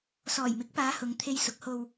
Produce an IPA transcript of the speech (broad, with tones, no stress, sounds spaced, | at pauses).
s ɔː˨˩ j m ɪ˨˥ k̚ p aː˨˧ h ʊ˨˧ ŋ t̪ʰ e˧ j s ʊ˨˥ k̚ h o˧ w